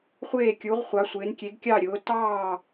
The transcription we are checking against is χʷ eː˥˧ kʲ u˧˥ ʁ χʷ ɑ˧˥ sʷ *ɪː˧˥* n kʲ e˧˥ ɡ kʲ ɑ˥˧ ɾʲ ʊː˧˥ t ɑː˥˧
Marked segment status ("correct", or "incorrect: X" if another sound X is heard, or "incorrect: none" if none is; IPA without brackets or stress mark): correct